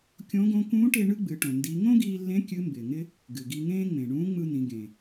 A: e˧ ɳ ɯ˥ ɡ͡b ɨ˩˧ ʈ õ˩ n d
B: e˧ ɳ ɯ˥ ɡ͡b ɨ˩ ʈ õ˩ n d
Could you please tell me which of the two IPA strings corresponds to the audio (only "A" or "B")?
A